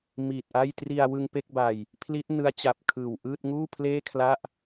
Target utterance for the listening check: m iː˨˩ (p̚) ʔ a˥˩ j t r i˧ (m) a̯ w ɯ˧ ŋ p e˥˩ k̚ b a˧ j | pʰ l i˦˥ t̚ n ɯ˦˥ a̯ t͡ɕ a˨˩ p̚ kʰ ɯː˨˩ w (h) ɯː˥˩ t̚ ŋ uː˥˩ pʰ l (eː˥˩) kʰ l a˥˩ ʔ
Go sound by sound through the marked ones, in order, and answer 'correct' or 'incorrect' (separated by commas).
incorrect, incorrect, incorrect, correct